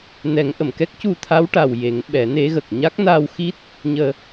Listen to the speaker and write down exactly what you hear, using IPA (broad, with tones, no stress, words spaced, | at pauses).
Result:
nɛ˨˩˦ŋʔə˨˩˨mkɛ˦˥k̚ cu˧t̪ʰa˧˥wʈa˨˩w je˨˩˦ŋ ɓɛ˨˩˦ne˧˥ɣə˨˩k̚ ɲa˦˥k̚na˧wxi˦˥t̚ | ɲəː˧